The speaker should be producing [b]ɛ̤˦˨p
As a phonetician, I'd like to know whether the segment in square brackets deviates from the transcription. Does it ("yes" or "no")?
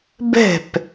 no